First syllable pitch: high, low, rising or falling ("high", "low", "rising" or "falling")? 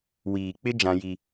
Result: low